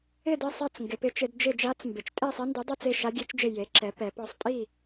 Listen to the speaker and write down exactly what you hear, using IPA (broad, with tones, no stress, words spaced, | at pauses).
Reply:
ɪ˦˨de˦˨ sˤɛ˦˨t͡sŋɡɪ˩˧ pɪ˩˥t͡ʃɪ˩˧d d͡ʒɪ˦˨d͡ʒa˧˥t͡s mbɪ˩˧t͡ʃ tʼe˦˨ sˤe˧˥ndi˩˥dˤɛ˦˨t͡s e˦˨ ʃa˧˥ɡʲe˧˥t͡ʃd͡ʒɪ˦˨ je˩˥ǁɛ˩˥ pɛ˩˧ pɔ˦˨sˤ tʼi˦˨